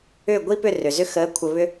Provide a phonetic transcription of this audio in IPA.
ʏː˥˩ɡʷi˥pʏ˥˩ rʏ˩zʏ˥ xəː˩˥kʷʰə˩βʏ˧

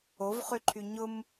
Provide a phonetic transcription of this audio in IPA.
ovχyǃʰy ɲʊm

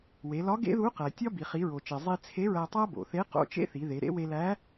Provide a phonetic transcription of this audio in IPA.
we˩˧lɒ˧˥ ɡḛ˥ðu˧˥ qæ˩tʲɒ˥ bi˩χi˩˧ɹo˩t͡ʃe˩ zˤi˧t͡sʰe˧˥ɹæ˧tˤæ˥ bo̰˩θe˧˥ qo̰˧˥t͡ʃḛ˥θi˩˧ ðe˩˧ɾḛ˥ we˧læ˧˥

